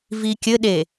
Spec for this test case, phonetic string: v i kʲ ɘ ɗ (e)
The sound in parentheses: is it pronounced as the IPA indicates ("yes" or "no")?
yes